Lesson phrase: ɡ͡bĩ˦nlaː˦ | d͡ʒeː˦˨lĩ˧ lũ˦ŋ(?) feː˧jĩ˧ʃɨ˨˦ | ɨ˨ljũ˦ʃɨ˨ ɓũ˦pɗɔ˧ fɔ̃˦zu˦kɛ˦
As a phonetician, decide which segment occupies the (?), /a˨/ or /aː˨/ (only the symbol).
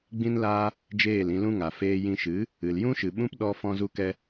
a˨